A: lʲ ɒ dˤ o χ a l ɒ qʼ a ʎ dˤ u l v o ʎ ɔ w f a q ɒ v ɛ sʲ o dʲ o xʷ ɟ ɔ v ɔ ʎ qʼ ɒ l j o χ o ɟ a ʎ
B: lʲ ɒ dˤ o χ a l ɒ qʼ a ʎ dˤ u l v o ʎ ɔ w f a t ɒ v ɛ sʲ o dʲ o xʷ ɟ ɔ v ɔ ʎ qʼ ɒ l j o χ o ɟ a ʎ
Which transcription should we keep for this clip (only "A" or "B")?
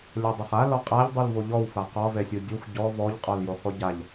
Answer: A